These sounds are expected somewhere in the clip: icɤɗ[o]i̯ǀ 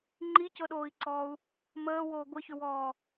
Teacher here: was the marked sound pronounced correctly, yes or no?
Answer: no